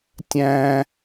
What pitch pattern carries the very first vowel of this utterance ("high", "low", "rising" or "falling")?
high